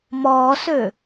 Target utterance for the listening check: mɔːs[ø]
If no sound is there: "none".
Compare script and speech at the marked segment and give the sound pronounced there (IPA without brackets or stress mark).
ø